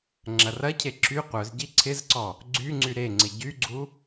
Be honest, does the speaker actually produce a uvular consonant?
yes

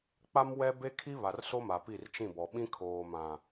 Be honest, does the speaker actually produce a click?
no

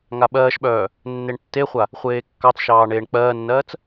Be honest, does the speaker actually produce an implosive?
yes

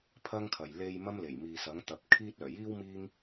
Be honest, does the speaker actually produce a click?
no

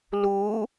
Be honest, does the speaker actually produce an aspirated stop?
no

